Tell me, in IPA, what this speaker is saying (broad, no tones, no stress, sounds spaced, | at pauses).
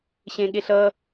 ɕ ẽ ɠ e ɬ ʌ